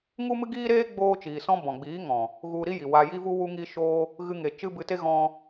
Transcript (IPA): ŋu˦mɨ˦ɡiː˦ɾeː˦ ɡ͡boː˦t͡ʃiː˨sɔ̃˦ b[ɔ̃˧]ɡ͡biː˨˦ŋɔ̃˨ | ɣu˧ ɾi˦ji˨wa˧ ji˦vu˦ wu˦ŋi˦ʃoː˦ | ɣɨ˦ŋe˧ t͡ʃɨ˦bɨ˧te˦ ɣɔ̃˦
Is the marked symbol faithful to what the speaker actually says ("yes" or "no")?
no